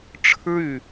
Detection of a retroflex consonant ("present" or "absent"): present